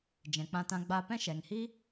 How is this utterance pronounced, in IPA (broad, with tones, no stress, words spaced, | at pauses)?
d͡ʒɛ̃˨k͡pã˧tã˧ ɡ͡ba˧pɛ̃˦ ʃɛ˨ŋhi˦